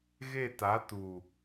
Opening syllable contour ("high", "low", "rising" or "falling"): falling